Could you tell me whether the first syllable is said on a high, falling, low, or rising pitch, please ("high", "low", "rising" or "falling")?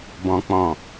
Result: low